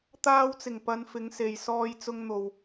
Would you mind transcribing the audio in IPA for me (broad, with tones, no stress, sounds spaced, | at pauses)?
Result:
t̪ aː˧ w t͡s ɪ˨˩ ŋ p ɐ˧ n f ɪ˨˧ ŋ s e˨ j s ɔː˧ j t͡s ʊ˧ ŋ n̪ o˨ w